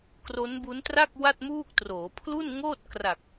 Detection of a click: absent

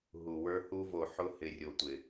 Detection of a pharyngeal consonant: present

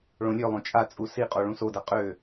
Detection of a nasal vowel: present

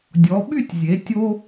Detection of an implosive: present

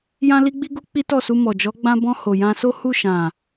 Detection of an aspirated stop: absent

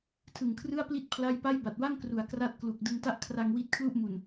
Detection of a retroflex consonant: absent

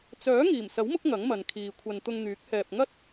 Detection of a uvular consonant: absent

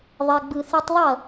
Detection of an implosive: absent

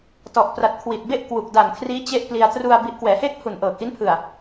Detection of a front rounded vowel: absent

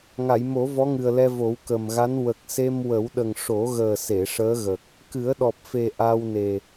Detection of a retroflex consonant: present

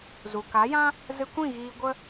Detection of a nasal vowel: present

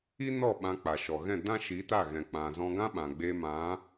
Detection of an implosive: present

